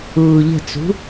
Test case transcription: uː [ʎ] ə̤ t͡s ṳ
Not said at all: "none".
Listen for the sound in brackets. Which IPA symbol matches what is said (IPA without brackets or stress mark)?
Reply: ʎ